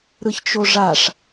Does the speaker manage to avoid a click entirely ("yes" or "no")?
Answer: yes